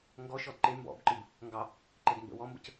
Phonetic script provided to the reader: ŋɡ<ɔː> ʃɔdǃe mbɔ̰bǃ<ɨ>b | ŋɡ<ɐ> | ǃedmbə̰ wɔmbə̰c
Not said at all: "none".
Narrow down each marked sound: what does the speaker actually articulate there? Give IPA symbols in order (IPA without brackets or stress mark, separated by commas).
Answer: ɔ, ɨ, ɑ